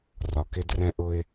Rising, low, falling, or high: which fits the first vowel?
low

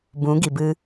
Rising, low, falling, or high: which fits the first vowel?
rising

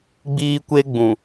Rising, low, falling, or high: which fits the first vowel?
high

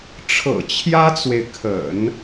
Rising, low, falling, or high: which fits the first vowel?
low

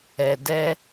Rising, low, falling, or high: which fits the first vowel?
low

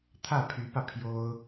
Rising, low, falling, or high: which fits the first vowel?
falling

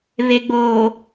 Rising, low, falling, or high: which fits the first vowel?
low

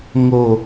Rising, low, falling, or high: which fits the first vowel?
low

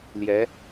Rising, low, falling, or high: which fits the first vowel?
rising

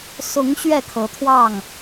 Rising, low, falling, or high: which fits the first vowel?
rising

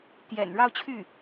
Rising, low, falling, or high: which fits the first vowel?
low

